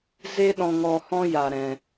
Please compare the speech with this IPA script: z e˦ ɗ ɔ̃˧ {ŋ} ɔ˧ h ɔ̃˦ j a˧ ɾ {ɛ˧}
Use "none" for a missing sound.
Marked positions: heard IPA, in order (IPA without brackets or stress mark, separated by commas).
ŋ, ɛ̃˧